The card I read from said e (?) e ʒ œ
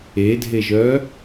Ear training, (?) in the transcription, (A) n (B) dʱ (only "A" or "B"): B